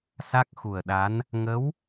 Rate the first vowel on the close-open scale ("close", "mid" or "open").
open